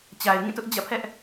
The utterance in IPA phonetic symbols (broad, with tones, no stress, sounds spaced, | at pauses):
t͡ɕ a˨ ɪ̯ ŋ ĩ˦˨ t ʊ˦ ʔ d͡ʑ ä̰˦˨ pʰ ɛ˦ ʔ